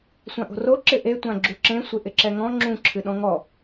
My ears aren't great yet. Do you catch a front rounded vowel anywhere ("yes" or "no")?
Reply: no